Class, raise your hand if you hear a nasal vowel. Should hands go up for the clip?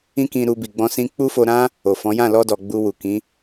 yes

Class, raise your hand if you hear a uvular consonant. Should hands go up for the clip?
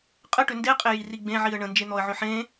yes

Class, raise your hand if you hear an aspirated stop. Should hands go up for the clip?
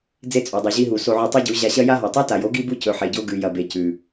no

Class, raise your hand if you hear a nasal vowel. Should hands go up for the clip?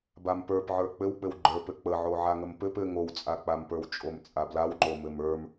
no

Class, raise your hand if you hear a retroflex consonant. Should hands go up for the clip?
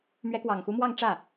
yes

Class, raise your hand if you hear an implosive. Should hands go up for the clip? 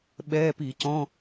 yes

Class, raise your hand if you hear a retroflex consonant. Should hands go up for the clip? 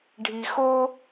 yes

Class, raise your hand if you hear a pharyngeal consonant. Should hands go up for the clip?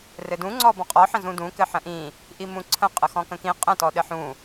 yes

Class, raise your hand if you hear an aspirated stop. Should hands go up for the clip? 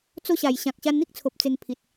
yes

